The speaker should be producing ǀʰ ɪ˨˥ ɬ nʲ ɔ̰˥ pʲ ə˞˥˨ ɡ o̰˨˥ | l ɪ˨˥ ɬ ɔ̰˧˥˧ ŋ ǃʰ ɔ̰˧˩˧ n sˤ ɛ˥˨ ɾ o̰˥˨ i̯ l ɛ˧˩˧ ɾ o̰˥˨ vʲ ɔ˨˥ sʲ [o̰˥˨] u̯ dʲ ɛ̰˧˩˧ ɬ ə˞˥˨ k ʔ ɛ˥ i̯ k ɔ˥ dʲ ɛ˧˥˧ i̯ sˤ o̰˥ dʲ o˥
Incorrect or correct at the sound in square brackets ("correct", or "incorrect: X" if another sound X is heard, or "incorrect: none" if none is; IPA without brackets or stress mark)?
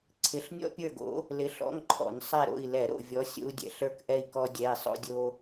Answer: incorrect: o̰˥